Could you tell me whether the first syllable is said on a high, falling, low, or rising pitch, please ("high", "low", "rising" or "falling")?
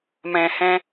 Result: low